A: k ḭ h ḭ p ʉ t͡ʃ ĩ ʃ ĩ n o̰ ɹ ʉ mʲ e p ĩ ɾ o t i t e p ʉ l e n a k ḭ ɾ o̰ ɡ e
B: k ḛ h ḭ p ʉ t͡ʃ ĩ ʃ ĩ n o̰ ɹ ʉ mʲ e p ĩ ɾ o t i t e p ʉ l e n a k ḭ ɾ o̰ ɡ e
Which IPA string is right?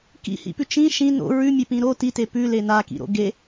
A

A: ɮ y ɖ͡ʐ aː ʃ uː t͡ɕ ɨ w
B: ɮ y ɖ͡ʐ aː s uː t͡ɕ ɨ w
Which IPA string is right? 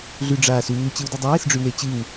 B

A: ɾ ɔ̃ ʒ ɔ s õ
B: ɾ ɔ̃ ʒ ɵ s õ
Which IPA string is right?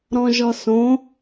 A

